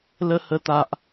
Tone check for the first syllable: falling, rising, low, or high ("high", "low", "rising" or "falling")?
high